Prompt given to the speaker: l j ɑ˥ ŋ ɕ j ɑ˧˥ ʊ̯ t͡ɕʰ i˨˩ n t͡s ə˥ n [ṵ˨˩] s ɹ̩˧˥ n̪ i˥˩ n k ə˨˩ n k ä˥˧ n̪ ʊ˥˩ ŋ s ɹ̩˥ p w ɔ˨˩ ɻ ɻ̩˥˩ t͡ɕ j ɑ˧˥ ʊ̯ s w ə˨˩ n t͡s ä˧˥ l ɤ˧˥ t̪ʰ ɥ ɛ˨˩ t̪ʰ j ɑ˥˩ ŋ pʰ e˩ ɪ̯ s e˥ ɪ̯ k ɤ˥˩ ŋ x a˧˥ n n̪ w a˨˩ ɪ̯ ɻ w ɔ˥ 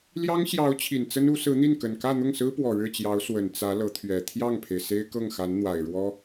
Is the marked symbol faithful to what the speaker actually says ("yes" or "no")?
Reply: no